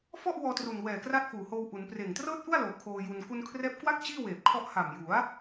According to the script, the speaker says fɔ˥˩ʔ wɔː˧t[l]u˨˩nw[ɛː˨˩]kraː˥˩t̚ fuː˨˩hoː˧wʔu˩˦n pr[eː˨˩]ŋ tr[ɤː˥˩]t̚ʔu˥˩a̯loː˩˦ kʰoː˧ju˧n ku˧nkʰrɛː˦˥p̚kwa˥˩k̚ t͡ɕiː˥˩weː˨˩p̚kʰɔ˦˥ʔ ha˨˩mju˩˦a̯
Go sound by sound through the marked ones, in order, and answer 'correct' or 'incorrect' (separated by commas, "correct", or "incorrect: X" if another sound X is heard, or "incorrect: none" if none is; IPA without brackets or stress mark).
incorrect: r, correct, correct, correct